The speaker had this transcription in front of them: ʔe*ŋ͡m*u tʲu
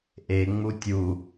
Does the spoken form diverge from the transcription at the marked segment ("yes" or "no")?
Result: no